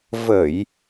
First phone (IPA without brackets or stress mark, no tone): v